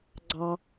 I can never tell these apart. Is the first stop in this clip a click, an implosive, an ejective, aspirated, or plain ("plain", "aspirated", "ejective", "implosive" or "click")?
click